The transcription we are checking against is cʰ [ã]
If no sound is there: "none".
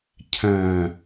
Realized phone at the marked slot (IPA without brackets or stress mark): ɐ̃